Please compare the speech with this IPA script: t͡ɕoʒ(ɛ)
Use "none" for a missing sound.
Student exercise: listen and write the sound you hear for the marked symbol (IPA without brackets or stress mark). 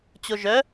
œ